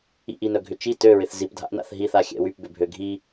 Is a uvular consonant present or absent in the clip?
absent